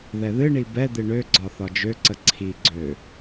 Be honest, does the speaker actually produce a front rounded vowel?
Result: yes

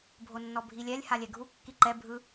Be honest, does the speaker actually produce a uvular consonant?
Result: no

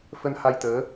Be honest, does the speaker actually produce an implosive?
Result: no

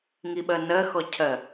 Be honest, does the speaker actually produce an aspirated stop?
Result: yes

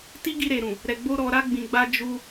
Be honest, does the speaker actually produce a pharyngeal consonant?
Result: no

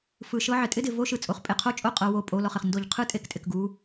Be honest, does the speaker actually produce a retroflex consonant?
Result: no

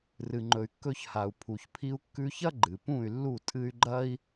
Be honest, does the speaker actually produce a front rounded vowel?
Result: yes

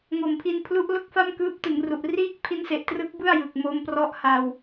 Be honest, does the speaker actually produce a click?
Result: no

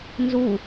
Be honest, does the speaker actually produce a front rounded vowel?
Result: no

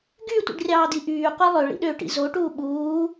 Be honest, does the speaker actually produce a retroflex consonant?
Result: yes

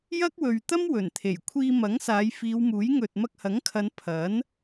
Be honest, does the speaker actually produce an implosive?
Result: no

